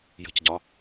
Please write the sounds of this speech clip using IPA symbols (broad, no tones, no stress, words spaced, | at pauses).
jə̤cɟɒ